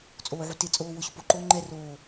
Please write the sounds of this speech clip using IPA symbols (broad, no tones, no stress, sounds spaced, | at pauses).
t͡sʼ oː ʕ u t ɪ t͡sʼ oː w ʊ ɕ ʊ p o ǃ oː ŋ͡ǃ ɛ r oː